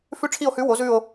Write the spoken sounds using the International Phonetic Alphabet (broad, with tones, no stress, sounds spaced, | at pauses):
f ʉ˥˧ ʈ͡ʂʰ i˥˧ o̯ h ʉ˧˥ w o˧˥ z ʉ˥˧ o̯